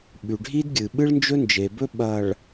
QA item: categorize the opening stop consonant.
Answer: implosive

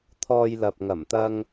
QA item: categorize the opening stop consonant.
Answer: aspirated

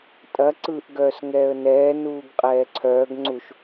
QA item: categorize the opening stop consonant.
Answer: ejective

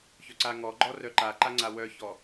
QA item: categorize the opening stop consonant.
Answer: click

